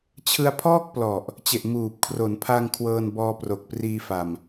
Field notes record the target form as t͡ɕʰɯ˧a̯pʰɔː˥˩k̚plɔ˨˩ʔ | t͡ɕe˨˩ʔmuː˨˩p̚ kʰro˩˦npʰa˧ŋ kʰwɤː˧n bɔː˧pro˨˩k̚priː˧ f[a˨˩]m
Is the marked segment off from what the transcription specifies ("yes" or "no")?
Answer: yes